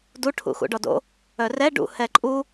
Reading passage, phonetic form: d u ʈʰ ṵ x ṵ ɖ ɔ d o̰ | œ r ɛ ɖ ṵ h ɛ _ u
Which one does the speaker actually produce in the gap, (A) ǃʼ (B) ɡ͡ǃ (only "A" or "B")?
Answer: A